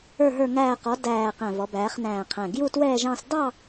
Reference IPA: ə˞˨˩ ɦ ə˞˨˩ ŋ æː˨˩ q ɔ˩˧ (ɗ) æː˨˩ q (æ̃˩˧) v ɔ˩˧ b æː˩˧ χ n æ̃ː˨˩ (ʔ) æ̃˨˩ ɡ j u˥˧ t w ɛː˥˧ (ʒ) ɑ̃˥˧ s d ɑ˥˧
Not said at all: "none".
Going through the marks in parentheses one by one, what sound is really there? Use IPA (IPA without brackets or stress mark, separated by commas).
d, æ̃˨˩, qʰ, ʒ